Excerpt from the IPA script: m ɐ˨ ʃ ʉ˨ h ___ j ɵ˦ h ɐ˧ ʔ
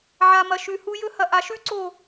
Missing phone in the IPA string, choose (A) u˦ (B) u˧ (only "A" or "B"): B